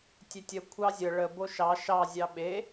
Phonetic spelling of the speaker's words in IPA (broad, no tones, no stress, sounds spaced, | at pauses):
tʲ e tʲ ə kʷʰ ɑ zʲ ə ɭ ə b o ʃ ɑ ʃ ɑ zʲ ɑ ɓ e